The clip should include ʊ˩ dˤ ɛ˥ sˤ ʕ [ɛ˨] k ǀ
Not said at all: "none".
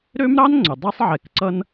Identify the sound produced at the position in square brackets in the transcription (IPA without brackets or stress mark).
ɛ˨